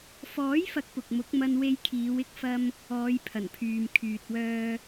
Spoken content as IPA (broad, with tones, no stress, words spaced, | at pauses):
fɔː˨˥jfɐ˨˥k̚ pʊ˨k̚mʊ˨˥k̚mɐ˧n we˧jkʰiː˨˧wɪ˥k̚fɐ˧m | ɔː˨˧jpʰɐ˨˩npʰyː˨m kʰyː˨t̚ wœː˧